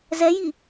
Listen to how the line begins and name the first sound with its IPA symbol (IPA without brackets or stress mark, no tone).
z